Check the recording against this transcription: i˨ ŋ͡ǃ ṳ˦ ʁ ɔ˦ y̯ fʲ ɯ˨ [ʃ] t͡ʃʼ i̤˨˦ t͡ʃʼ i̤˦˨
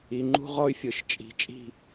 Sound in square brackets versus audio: correct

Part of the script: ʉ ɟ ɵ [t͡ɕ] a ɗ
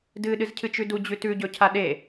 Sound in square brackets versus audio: incorrect: cʰ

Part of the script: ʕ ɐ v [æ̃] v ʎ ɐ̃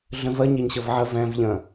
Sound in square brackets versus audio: correct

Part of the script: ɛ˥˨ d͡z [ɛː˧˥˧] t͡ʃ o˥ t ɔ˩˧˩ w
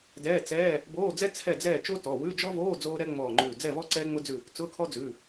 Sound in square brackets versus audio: incorrect: ɛː˥˨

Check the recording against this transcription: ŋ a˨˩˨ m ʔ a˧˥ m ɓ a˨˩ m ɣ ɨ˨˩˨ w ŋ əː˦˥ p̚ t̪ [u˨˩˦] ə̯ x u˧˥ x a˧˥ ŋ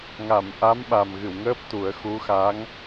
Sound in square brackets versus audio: correct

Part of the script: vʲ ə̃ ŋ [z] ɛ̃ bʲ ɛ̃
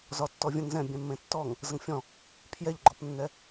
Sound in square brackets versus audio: correct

